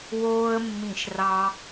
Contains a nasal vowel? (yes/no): yes